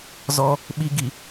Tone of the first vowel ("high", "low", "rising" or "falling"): high